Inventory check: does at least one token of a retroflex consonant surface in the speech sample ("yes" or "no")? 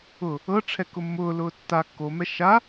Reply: yes